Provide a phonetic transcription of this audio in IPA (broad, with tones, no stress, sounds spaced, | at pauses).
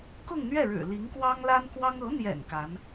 k ʊ˥˧ ŋ n̪ ɥ ɛ˥˩ ɻ ɻ̩˨˩ l i˧˥ ŋ k w ɑ˥ ŋ l a˥ n k w ɑ˥ ŋ ɤ˧˥ n̪ j ɛ̰˨˩ n k a˧˥ n